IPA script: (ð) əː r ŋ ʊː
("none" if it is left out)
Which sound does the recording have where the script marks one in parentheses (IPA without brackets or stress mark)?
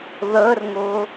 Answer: ð